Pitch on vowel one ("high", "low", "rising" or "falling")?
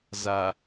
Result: low